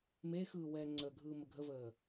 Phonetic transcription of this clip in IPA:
m eː x ɯː w ɛː ŋ͡ǀ əː ɡʱ ɯː m ə ɡʱ ə v əː

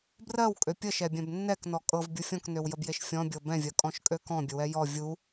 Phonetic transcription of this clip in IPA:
b r ɜ w kʼ ø pʲ ə ʃ ɛ bʲ ɛ̃ b nː ɛ k n ɔ kʼ ɤ v bʲ u fʲ ɔ̃ k n ø w j ə b j e ʃ fʲ ɔ̃ bʲ ɤ b ɛ̃ vʲ ɜ kʼ ɔ̃ ʃ kʼ ø k ɔ̃ bʲ ə w ɛ j ɔ vʲ u

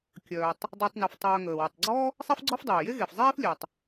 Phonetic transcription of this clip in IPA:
kʲ œː˩ tˤ | dˤ əː˨ tˤ n i˩ f tˤ œː˨ ŋ əː˩ w ə˩ tˤ ɡ͡ǀ ɔ˥ | sˤ i˦ f ɡ͡ǀ ɔ˦ f dˤ eː˩ j e˦ ɣ e˩ f zˤ eː˥ f lʲ ɛ˩ tˤ

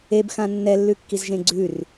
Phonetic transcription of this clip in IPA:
e b x ã nː ɛ lː ʉ kː i z ʒ ẽ ɡ͡ǀ ʉ r

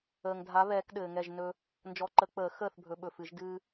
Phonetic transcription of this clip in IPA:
əː˨ ŋ dʱ a˨˦ β ɛː˨˦ k ɗ ɘː˨ ŋ ɛ˥˨ ʒ n ɵ˦ | n d͡ʒ ɔ˨˦ ǃ ə˨˩˦ k͡p əː˨˩˦ x əː˥˨ θ bʱ ɵ˨˦ ɓ ɵ˨ f ɨ˨˩˦ ʒ d ɨː˦

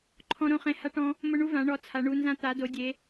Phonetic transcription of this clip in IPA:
ǃʰ ɔ̃˦ ɾ õ˦ χ ẽ˦ h a˦ ʈ ɔ̃˦ | m ʊ˦ ɳ u˦ v ã˨˦ ɳ ɔ˨˦ t͡sʰ a˨˦ ɳ u˨˦ n z ã˦ t̪ a˨˦ d o˨˦ dʲ e˨˦

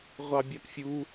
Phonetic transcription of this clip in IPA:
ʁʷ ɑ bʲ ɑ p fʲ u

